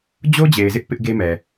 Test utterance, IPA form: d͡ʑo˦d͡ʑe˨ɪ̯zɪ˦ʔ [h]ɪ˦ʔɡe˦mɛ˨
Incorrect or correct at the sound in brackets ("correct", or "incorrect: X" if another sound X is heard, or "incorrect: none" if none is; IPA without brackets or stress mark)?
incorrect: p